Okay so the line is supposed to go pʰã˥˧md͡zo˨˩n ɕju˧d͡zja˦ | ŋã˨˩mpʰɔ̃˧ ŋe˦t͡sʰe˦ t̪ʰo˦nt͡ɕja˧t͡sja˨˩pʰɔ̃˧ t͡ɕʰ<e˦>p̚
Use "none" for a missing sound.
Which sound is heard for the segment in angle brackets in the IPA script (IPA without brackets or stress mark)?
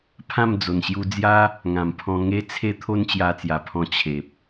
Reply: e˨